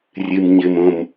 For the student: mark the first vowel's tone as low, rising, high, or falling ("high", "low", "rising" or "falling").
low